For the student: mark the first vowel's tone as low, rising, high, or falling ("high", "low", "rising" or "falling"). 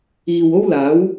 low